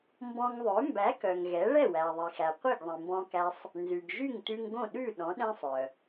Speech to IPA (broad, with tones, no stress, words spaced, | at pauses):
mbɔ̃˧ŋðˤø˩˥ mbæ˩˥kœ˩ŋ ɣɛ˩˥ ɭɛ˥˩wæ˩ðˤi˩xæ˩ qʷi˥˩ɡðˤĩ˩mbɔ̃˧kæ˧sˤ | nzʉ˩ɡʒy˥˩ŋ tʉ˧ŋɡõ˥˩ɗʉ˥˩ ɗɔ̃˩˥ɗɛ̃˥sˤœ˩